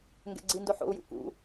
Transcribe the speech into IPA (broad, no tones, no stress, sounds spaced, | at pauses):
ŋ ɡ ɛ̰ ɡ͡ǀ i n d o ħ o̰ u̯ j ṵ k ṵ